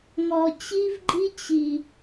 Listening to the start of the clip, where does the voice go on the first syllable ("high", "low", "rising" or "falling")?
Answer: low